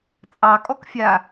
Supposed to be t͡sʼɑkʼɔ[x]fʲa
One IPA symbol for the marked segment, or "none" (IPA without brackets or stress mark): k